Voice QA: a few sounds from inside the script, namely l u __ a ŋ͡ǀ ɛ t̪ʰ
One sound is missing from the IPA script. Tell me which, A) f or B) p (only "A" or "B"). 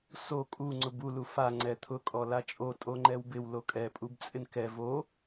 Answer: A